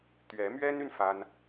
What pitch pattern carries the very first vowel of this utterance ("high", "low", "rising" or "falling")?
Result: rising